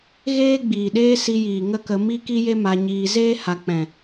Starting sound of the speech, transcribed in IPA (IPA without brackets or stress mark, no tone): ɣ